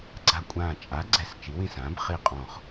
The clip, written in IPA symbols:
ɡ͡ǀ a˧˩ kʷʼ ãː˧˩ t͡ʃʼ a˩˥ ɡ͡ǀ ɛ˩˥ s t͡ʃ i˩˥ w ĩ˧˩ s ãː˩˥ b χ i˧˩ qʼ ɔ̃˧˩ χ

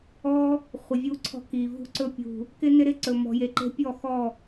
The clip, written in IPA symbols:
ɔ˧ | χʷ ɪ˨ vʲ u˧ ǀʰ ɔ̤˧ k i˨ v ṳ˧ ǀ ɵ˧ pʲ ṳ˨ | k ɪ˧ n ɪ˦ ɾ ɪ˦ ǀ ɵ˨ m ɔ̤˨ j e˨ ǃ e̤˧ pʲ ɔ˦˨ x ɔ˦˨

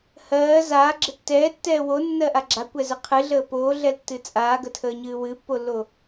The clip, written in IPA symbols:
h ɜː z aː ɡ͡ǁ ə tː ɛː tː ɛː w o nː ɜ ʔ a ɡ͡ǁ a kʷ ɛ z ə qʰ ɨ ɮ əː p oː ɮ ɛ l tː ɨ t͡sʼ aː ɡ ə tʰ əː ɲ ɨː w ɨ pː o lː o

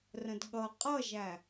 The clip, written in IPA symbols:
r ə̃ d ɠ ʌ qʼ ʌ ʒ æ

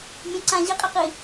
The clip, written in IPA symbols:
mʲ ẽ ǀ ã ʑ i qʼ e q i

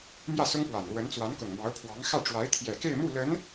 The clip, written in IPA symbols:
m j ä˥˩ s ʊ˥ ŋ p w a˨˩ n l w ə˧˥ n t͡s w a˧˥ n k ʊ˨˩ ŋ m ɑ˧˥ ʊ̯ pʰ w ɑ˧˥ ŋ x ä˥˩ ʈ͡ʂ w a˧˥ ɪ̯ t̪ʰ j ɛ˨˩ k e˥˧ ɪ̯ m u˥˩ l ə˧˥ n

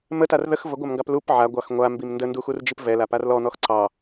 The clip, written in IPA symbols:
m ə t a r ð ə x v ə ɡʷ a m ŋ ɡ ɑ p l u p ʕ a ɡʷ ɑ x ŋʷ a m b i m n d ə n d u x u r d͡ʒ i p v ɛ l a p a r l ɔ n̪ ɔ x ǀ ɑ

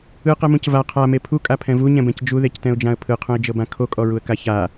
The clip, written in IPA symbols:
ɯ q ɛ m ũ c v a qʰ a m e pʰ u kʼ a pʰ ɛ̃ v u ɲ ɛ̃ b ɛ̃ c d͡ʒ u ð e c t ɛ̃ ʊ̯ d͡ʒ ã ə̯ pʰ ɯ qʰ ũ ɪ̯ d͡ʒ ɤ b ã kʰ o kʼ ɔ ɹ u ə̯ k a ç a

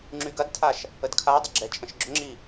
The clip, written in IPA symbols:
ŋ͡ǁ y ɡ ɐ d tʰ a ʃ | ə d kʰ a dˤ ɐ ɡ͡ǁ ɛ t͡ʃʼ ə̃ ʃ ɡ͡ǁ ʊ ŋ͡ǁ i

